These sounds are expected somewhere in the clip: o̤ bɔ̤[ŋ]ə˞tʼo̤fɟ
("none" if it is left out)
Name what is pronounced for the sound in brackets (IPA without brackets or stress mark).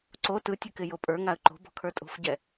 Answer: kʰ